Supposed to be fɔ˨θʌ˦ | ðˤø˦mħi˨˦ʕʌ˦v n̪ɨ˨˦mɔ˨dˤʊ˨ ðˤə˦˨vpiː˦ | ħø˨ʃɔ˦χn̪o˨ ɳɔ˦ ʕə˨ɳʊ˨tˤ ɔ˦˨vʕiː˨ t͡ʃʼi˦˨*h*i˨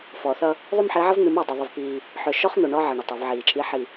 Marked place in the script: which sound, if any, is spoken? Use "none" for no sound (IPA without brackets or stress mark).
ħ